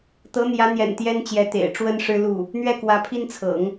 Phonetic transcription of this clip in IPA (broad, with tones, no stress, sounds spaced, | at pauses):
t̪ ɤ˧˥ n̪ j ä˧˥ n̪ j ɛ̰˨˩ n t̪ j ɛ˥ n t͡ɕ j ɛ˧˥ t̪ ḛ˨˩ ɪ̯ ʈ͡ʂ w ə˥ n ʂ ɻ̩˥ l u˥˩ | n̪ ɥ ɛ˥˩ k w ä˧˥ pʰ i˥ n t͡sʰ ɤ̰˨˩˦ ŋ